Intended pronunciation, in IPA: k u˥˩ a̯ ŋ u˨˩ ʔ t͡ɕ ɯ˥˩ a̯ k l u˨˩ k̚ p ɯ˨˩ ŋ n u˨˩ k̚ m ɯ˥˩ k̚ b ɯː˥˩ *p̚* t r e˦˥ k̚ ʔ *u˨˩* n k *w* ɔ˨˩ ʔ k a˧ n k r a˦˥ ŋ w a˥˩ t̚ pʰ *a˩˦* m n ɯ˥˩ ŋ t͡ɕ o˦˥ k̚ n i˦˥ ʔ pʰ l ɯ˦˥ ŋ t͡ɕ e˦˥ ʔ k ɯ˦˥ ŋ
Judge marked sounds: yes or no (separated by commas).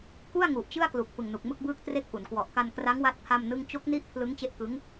no, no, yes, no